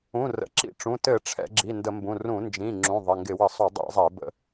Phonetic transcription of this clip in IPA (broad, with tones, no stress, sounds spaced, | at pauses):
ũ˩˧˩ r ə̰˩˧˩ ǁ ḭ˧˩˧ ʈ͡ʂ ũ˩˧˩ t ɘ˧˩˧ ʈ͡ʂʰ ɛ̰˧˩˧ ɡ͡ǁ i˩˧˩ n d ə˧˩˧ m b ũ˩˧˩ r ũ˧˩˧ n d͡ʒ ĩ˩˧˩ ŋ͡ǁ ũ˩˧˩ ðˤ ɘ˩˧˩ ŋ ɡ ɪ˧˩˧ w ə˧˩˧ sˤ u˧˩˧ dˤ ḭ˧˩˧ zˤ ɛ˧˩˧ b ə̰˧˩˧